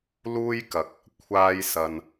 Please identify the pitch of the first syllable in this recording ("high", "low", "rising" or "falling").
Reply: high